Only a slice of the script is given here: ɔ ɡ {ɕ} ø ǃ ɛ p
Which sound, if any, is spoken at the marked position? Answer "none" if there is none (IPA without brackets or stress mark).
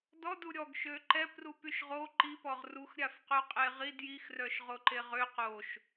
ʃ